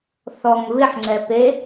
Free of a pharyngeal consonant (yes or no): no